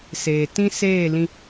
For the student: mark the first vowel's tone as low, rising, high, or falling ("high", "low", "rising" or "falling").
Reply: low